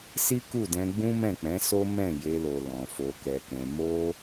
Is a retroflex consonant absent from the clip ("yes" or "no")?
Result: yes